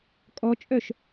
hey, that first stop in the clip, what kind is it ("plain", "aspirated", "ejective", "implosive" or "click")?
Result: ejective